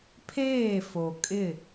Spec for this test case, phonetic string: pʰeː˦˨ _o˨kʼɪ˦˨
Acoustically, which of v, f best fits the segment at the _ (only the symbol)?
f